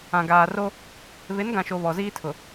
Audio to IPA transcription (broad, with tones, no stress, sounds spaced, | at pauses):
ã˨ ɡ aː˨ r o˦ | β ɪ˨˦ n ɡ ã˨ ʃ o˨ β ɔ˨ z iː˦ tʰ ʊ˨